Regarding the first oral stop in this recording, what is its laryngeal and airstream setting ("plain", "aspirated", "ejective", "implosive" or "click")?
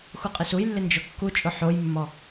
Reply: ejective